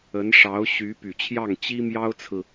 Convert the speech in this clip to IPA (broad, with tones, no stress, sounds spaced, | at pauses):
ə˧˥ n ʂ ɑ˧˥ ʊ̯ ɕ y˧˥ p y˨˩ t͡ɕʰ j ɑ˥˩ ŋ t͡ɕ i˥ m j ɑ˥ ʊ̯ t͡sʰ ɹ̩˨